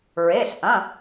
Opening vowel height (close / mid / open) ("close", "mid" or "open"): mid